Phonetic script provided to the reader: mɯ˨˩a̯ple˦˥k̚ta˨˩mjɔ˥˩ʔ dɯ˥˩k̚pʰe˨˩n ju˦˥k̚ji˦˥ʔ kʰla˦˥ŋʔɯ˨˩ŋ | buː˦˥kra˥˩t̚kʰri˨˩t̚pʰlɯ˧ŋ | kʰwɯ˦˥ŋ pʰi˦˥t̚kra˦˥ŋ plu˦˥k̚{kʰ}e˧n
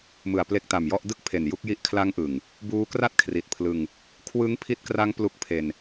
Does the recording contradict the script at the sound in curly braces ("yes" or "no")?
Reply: yes